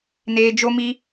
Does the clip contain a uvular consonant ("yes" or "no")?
no